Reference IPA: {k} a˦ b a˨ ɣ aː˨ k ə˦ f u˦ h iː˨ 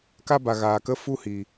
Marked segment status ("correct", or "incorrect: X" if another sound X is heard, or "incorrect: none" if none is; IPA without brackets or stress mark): correct